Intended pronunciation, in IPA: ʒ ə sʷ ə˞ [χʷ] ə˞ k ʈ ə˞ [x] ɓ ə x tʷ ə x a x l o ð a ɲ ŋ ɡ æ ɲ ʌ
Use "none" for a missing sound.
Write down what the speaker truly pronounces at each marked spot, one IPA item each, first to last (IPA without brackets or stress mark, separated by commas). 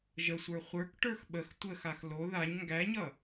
χʷ, x